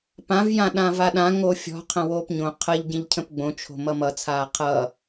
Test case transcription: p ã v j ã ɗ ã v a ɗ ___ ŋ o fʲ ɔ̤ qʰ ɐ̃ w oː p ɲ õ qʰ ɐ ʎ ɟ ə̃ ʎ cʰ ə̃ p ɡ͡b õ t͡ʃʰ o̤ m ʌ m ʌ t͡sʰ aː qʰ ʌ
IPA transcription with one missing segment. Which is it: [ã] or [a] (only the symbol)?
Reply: ã